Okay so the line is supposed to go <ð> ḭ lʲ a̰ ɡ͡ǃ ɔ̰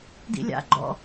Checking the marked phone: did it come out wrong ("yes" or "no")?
yes